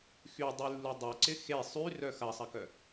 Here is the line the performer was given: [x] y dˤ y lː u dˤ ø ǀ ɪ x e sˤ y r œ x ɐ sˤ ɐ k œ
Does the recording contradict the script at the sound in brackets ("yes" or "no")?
no